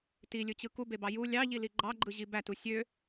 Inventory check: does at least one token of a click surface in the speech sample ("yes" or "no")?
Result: yes